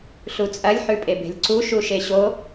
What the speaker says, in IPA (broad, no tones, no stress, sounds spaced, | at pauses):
ɬ u t͡sʼ ɐ lʲ ħ ʉ pʼ e b e̤ lʲ ǀ u ʃ u ʃ e ɕ o